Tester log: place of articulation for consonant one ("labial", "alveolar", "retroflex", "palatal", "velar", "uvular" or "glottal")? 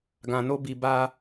velar